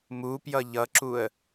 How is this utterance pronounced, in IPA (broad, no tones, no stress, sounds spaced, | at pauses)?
m u p j ʌ ʎ ʌ ǁ u ə̯